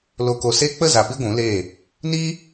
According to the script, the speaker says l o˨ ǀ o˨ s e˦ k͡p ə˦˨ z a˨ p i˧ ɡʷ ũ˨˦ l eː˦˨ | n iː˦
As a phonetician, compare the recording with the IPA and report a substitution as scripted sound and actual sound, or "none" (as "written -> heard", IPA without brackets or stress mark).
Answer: ǀ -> k